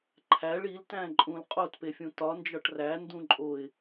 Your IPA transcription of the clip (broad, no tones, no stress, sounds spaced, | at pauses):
ǃʰ æ ɭ i l t æ̃ ǃʼ ũ l qʼ o t p e fʲ ũ t ɒ n d͡ʒ ɒ ʈ r æ n d ũ ǃʼ o ɪ̯